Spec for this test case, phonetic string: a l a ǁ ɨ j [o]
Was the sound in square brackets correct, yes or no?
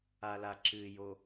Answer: yes